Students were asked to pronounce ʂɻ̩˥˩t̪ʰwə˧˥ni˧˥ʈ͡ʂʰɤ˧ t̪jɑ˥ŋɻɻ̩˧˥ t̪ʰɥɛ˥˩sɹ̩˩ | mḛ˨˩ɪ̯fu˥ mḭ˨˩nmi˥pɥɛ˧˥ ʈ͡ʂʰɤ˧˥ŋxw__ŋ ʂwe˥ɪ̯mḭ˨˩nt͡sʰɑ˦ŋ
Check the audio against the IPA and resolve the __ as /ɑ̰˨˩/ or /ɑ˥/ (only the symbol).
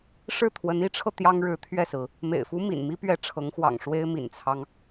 ɑ̰˨˩